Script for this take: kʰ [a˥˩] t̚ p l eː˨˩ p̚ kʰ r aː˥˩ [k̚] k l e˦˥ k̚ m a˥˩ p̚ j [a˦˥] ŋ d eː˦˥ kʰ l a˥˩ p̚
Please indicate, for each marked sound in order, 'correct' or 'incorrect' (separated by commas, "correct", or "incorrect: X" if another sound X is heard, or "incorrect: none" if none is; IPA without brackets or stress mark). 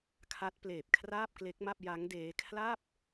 incorrect: a˦˥, incorrect: p̚, correct